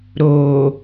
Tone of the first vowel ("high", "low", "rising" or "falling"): low